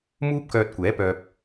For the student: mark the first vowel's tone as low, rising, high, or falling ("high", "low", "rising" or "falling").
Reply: high